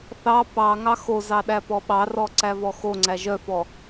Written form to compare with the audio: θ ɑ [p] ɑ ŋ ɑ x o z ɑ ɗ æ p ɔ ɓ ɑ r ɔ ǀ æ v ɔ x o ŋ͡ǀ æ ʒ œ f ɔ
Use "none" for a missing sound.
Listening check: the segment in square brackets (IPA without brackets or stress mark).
p